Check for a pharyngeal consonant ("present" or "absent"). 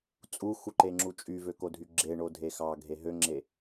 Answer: absent